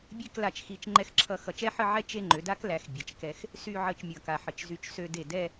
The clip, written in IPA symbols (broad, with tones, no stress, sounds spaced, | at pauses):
bʲ e˥˧ k l a˧˩ t͡ʃ x i˧ t͡ʃ ŋ͡ǃ ɛ˥˧ x ǁʰ ʌ˥˧ x ʌ˧˩ t͡ʃ ɛ˥ ħ ə˥˧ ʕ ɛ˥˧ t͡ʃ e˥˧ ŋ͡ǃ ø˩˧ d a˥ k l æ˩˧ x bʲ ɛ˩˧ t͡ʃ k ɛ˧ x | s y˥˧ ʕ ə˥˧ t͡ʃ mʲ ʌ˧˩ k a˧˩ ħ ə˧˩ t͡ʃ z y˧ t͡ʃ s ø˧ d e˧˩ d ɛ˥˧